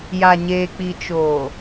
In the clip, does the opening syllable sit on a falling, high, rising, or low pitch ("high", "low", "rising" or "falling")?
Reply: low